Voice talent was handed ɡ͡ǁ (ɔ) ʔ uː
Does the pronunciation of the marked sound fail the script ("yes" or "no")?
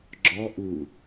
no